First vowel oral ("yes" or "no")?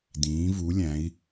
no